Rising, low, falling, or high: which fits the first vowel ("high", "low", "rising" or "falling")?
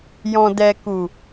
low